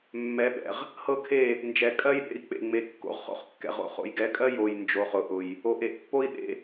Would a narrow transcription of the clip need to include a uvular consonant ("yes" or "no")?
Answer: yes